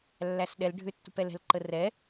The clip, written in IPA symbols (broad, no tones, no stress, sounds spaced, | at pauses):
lː æ s ɗ ɛ l ɖʱ ʏ tː ṳ p ɛ l ɛ̤ l ǃ ə r ɛ